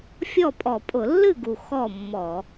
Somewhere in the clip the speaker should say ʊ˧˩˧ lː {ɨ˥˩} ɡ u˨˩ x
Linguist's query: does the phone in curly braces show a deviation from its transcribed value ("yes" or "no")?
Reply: no